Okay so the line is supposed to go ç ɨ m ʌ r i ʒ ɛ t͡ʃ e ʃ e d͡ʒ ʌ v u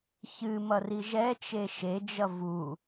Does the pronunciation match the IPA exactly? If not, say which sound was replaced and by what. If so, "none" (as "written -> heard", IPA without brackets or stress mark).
none